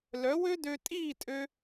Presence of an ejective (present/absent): present